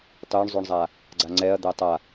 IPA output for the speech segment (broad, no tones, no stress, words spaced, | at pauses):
tˤyɳzˤʉɳzˤa | ɡ͡ǀaŋ͡ǀɛɐ̯d̪ɛ tˤa